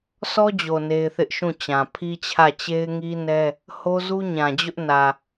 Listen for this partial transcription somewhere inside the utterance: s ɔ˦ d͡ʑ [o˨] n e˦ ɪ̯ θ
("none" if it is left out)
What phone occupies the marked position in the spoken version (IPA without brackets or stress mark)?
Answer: o˨